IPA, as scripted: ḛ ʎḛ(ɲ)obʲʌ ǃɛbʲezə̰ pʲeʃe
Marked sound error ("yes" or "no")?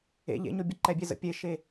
no